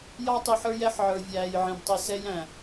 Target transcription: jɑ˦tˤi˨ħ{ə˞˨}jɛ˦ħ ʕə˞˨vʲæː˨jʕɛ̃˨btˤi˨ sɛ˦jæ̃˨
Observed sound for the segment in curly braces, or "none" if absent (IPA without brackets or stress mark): ə˞˦